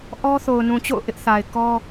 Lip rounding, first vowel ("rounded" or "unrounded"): rounded